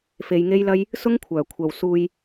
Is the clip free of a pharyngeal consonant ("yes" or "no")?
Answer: yes